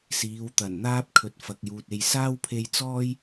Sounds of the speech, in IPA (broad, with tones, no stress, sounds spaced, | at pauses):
s iː˨˧ w t̪ ɐ˨˩ n n̪ aː˥ p̚ kʰ ɵ˨ t̚ f ɐ˨ k̚ j uː˨ t̚ e˧ j s aː˥ w pʰ e˧ j t͡s ɔː˥ j